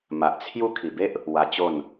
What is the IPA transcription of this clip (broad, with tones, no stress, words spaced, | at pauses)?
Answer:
ma˨ʔ t͡sʰju˦ kʰi˨˩be˦ʔ | wa˧t͡ɕo˥˧n